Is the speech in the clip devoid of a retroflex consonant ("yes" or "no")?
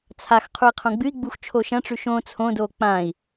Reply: no